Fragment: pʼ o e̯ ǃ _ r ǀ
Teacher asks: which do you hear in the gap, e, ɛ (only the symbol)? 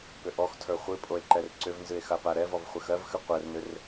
ɛ